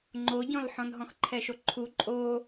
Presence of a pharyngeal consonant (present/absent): present